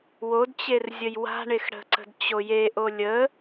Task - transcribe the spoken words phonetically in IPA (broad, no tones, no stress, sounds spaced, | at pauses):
w o d t͡ɕ e r zʲ ə j w a̤ ɳ e x ɽ ə̤ ǀ ə̤ d t͡ɕ o j e ʔ o lʲ ə